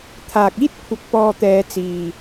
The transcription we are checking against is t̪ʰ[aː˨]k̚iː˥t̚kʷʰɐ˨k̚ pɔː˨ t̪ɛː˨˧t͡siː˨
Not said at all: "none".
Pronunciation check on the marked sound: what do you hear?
aː˨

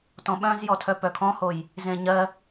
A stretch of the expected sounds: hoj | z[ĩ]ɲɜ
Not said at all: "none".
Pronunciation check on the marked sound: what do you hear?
ẽ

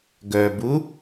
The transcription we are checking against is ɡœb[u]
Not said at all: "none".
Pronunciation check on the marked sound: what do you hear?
u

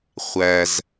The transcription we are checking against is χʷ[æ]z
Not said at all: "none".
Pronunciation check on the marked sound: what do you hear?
æ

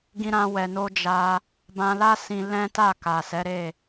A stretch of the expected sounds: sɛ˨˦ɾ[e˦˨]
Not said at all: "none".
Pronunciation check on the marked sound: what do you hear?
e˦˨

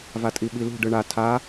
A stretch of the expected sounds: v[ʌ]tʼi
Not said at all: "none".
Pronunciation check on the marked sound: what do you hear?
a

